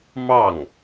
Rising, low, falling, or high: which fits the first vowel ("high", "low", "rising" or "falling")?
falling